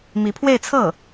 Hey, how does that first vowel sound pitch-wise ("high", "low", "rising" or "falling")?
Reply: rising